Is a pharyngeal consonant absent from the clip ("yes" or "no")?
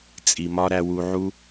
no